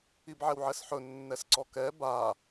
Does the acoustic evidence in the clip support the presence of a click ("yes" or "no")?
yes